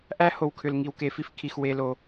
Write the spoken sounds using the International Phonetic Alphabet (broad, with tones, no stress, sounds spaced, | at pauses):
ʔ æ˦ h o˨ w kʰ ʏ˨ l ŋ i˨ w k e˨ f i˦ f kʰ i˨ x w e˦ l o˦